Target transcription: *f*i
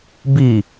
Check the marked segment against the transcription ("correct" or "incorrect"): incorrect